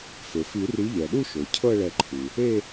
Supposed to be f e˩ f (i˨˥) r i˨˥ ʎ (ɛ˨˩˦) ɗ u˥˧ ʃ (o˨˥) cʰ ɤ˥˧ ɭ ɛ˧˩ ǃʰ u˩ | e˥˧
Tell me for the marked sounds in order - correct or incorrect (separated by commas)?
incorrect, incorrect, incorrect